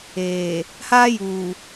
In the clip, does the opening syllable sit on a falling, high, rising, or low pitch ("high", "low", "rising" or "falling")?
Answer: low